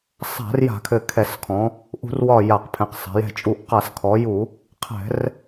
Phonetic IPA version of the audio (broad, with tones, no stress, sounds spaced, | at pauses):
sˤ a̤˧˩˧ r j a̤˧˩˧ kʰ ɘ˧˩ kʰ ɛ˧˩˧ s kʰ ɔ̃˩˧ | ʔ ṳ˧˩˧ r w ɒ˧˩ j a˧˩˧ q pʰ ɛ̃˩˧ q sˤ a̤˩˧ j ɛ̤˧˩ t͡ʃʼ u˧˩˧ ʔ q a˧˩˧ s kʰ ɔ˩˧ j u˧˩˧ | qʰ ɛ̤˧˩˧ r